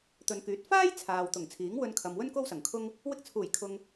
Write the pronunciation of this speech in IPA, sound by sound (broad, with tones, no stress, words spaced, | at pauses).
t̪ɵ˨˧nkyː˨˥t̚ faː˥j t͡sʰaː˨wt̪ʊ˨˩ŋ t͡sʰiː˨˥ŋwɵ˧nkʰɐ˨mwɵ˥n ko˥w sɐ˨˩ŋkʰʊ˥ŋ | wɪ˧k̚t͡sʰuː˨˩jkʰʊ˨ŋ